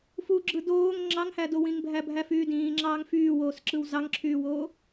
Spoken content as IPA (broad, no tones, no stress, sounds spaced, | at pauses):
f u ɡ͡ǁ ɯ d oː ŋ ŋ͡ǁ ɑ ŋ h æ d o w ĩ ŋ bʱ æ bʱ æ f yː d ĩː ŋ͡ǁ ɑː ŋ f yː w oː s ǁ ɯ w z ɑ ŋ ǁʰ yː w oː